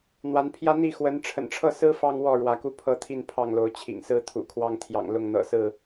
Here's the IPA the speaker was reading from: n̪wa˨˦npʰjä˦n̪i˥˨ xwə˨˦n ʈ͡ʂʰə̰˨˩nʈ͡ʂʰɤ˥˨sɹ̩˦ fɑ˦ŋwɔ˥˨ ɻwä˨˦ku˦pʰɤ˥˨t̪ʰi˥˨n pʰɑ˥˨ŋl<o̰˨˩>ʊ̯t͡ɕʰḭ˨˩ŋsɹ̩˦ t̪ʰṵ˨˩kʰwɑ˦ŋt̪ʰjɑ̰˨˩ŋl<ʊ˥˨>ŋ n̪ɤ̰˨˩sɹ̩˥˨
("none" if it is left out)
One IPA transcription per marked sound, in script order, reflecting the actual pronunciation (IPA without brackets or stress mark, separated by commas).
o˨˦, ʊ˥˨